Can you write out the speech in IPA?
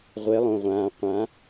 ʁʷɛ˨˦lˠõ˨ʁʷãː˨ qʷã˨˦

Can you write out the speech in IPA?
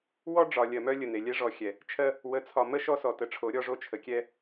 wɔ˦ ɖ͡ʐɒ˨ lʲɜ˨mœ˦ lʲə˨ne˨ lʲɛ˦ʐɔ˨ xʲɛ˨ | t͡ʃʰɜ˦ | wə˨˦t͡sʰɒ˨ mə˦ ʃɔ˦sɔ˨ tə˨˦ʈ͡ʂʰo˨˦ɾʲɔ˦ʐo˦ t͡ʃʰə˨kʲɛ˦

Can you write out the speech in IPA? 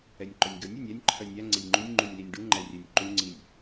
ɛnʲǃœnʲɡœnʲonʲ ænʲǃʰœ nʲæŋ͡ǀɛnʲ ŋ͡ǃunʲŋ͡ǃunʲ linʲɖuŋ͡ǃæ rʲɛnʲǃuŋ͡ǀinʲ

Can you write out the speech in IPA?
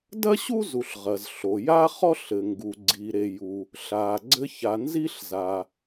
dɐ˥ɕu˥zu˩ɬ ʁɐ˩zɬo˩ ja˥χɔ˥ɬɘ˩ ŋɡu˩ɡ͡ǀi˩ɾe˩ju˩ | ɬa˩ ɡ͡ǀɘ˥ça˩ nzi˥ɬza˩

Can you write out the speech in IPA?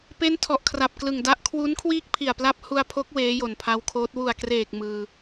pe˦˥n tʰɔ˨˩ʔkʰra˨˩p̚klɯ˨˩ŋ da˦˥ʔ kʰwu˦˥nkʰwiː˥˩k̚ pʰi˨˩a̯pla˦˥p̚ hu˧a̯pʰo˦˥k̚ weː˦˥jo˨˩npʰa˦˥wkʰoː˦˥t̚ wu˨˩a̯kreː˨˩k̚ mɯː˧

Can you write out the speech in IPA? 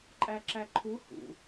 ǃʼæǁæǃʰu hṵ

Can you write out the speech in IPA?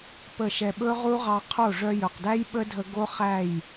pə˦˨ʃɛ˧ ɓɵ˦ʁu˦ʁɑ˧ qʰo˦˨ ʐœ˧jɵ˨qdæ˦j ɓə˦dʱə˧ɡo˦ χæ˦˨j

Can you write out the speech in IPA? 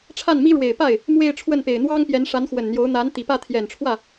ʈ͡ʂʰa˥˩nmi˥ɻwe˨˩ɪ̯ pa˥˩ɪ̯ | mwe˥˧ɪ̯ʈ͡ʂʰwə˥˩npe˨˩ɪ̯ n̪wɑ˥ŋpjɛ˧˥n ʂa˧˥nxwə˨˩nn̪jo˧˥ʊ̯ n̪a˧˥n t̪i˨˩pä˥˩ t̪ʰjɛ˨˩nʈ͡ʂʰwä˥˩

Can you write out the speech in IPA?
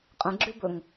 qʼɐ̃ɡ͡ǁʉbɵŋ

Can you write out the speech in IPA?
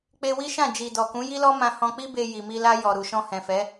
k͡pe˧wi˦ʃã˦˨ d͡ʒi˨dɔ˨kũ˨˦ ji˦lɔ˦ mã˧hɔ̃˧k͡pi˦be˧ ji˨mi˧ la˧ jɔ˨ɾu˨ ʃɔ̃˧hɛ̃˨fɛ˨˦

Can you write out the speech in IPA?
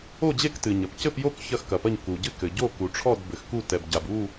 o˦˨d͡ʑe˦˨ktɨ˩ ɲɐ˩pcɘ˦˨pjo˦˨k çɐ˦˨xkɐ˩pɐ˦˨ɲ ku˩ɟɨ˦˨ kɘ˩ɟo˦˨ ku˩ʈ͡ʂʰɔ˦˨d bɘ˩xku˦˨tɛ˩bɟa˩b u˦˨

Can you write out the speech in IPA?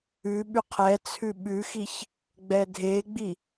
ʉ ɓʉqʰɛt͡sʰʉ ɓʉxiç | ɡ͡bɛdʱeɡ͡bi

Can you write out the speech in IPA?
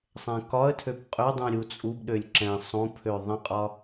sˤɛ̃kɒə̯tʰøp qʼødˤũ ɾʲut͡sʼubɗølʲ ǁɛ̃ sˤõpʰø ðˤə̃qʼɒ

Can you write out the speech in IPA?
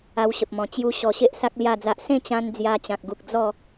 a˧wɕə˨p̚mɔ̃˨˩ t͡ɕju˧ ɕɔ˧ɕe˦ʔsa˦k̚ lja˥˧d͡za˦ʔ sẽ˥˧t͡ɕã˧n d͡zja˧t͡ɕã˨k̚ɡu˨k̚ d͡zɔ˥˧

